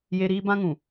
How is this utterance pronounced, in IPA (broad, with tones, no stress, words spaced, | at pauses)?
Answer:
je˦ ɾiː˦bã˦ŋũ˨